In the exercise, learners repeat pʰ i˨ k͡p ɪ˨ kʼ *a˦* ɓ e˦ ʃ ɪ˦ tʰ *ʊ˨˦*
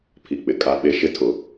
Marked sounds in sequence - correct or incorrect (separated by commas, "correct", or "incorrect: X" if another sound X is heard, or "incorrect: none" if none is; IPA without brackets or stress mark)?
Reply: correct, correct